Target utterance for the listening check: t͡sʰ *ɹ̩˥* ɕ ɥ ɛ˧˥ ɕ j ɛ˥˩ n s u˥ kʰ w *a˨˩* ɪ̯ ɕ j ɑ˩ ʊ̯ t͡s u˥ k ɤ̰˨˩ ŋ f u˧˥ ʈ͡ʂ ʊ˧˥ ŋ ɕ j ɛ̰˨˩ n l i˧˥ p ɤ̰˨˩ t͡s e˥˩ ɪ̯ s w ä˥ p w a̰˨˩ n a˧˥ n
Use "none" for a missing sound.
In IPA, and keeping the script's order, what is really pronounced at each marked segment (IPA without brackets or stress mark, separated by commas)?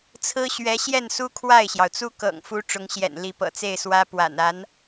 ɹ̩˥, a˥˩